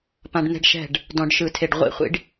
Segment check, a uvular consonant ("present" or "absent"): present